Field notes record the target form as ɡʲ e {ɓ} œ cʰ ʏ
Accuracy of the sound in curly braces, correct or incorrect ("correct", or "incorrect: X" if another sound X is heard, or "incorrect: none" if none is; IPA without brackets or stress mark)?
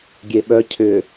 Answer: correct